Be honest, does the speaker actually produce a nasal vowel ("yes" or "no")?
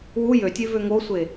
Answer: no